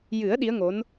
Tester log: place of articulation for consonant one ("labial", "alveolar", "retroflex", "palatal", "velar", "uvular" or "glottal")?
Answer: palatal